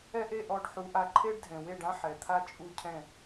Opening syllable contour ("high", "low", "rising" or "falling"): high